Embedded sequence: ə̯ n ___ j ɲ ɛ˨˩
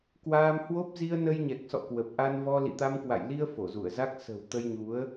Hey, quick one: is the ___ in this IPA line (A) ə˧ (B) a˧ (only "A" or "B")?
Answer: A